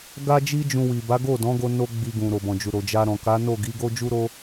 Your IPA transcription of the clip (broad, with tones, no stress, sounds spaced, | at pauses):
ɡ a˦ d͡ʒ i˦ d͡ʒ ũ˧ w i˨ b a˨˦ ɡ o˦˨ d ɔ̃˨˦ ɡ o˧ n o˦ ɡ͡b i˧ ɡ ũ˨ ɾ o˨ b ɔ̃˨ d͡ʒ u˨ ɾ o˨ d͡ʒ a˧ ɾ ɔ̃˨ k a˨˦ n o˦˨ ɡ i˨˦ ɡ o˦ d͡ʒ u˦ ɾ o˦